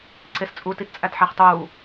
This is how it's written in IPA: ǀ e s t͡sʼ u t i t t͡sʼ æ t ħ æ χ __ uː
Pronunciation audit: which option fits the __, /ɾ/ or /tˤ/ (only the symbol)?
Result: tˤ